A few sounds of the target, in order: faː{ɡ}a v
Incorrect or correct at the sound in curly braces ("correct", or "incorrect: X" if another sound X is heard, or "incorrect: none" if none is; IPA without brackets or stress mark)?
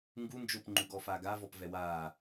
correct